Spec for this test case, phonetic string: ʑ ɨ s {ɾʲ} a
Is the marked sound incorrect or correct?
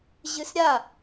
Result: correct